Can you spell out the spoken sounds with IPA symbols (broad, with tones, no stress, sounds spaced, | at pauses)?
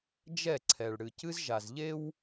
d͡ʒ ɛ˦˨ ǀʰ ɛ˨ ɭ ɽ ɨ˨ c ɨ˦ z ʒ a˨ z ʎ e˦ w